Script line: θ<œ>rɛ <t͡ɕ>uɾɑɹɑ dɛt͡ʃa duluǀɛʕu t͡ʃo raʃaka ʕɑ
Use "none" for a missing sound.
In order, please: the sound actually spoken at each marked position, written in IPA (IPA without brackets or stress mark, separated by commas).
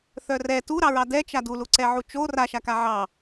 œ, t